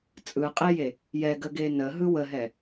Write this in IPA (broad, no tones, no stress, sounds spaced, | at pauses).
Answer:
t͡sʼ ɯ qʼ e j e | j ɛ ɡ ə ɡ e n ə ɦ ɯ w ə ɦ ɛ